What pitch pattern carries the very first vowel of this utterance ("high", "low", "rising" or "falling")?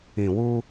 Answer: low